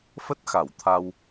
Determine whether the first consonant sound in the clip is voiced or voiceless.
voiceless